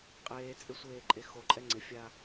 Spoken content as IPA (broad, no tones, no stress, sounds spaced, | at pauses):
qʼ eː t͡sʼ e sʷ eː ǃʼ e x o ǃʼ ɛ ŋ͡ǀ ɪ fʲ a